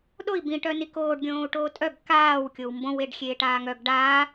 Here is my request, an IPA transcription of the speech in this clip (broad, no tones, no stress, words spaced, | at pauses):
ɗoi̯ bĩʈœ nikoːɖɡʲõːu̯ ʈoːtʼœɡ kaːw kʲowmbõweɖ xʲeːʈaːŋœɡ ɖaː